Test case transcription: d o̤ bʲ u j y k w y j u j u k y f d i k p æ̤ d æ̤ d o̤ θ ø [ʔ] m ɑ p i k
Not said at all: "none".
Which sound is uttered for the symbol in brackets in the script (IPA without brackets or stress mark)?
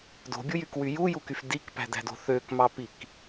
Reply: k